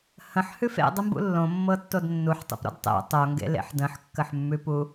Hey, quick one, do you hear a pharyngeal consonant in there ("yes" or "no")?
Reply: yes